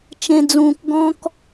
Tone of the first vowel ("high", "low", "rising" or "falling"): low